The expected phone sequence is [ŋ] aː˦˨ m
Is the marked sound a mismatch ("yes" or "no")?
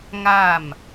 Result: no